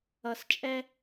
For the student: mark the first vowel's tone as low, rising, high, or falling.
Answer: low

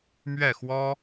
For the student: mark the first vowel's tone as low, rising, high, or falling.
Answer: falling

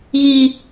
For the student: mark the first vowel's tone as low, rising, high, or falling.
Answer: high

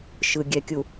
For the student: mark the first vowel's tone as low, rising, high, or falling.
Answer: low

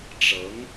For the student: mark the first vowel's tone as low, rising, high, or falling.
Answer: rising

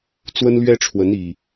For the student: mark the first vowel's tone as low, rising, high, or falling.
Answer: high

